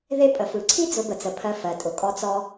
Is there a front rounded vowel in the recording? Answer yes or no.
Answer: no